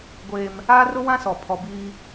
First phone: ɡʷ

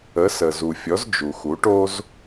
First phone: ə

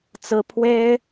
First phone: t͡s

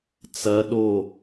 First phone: t͡s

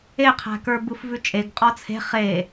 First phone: e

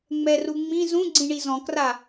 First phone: ŋ͡m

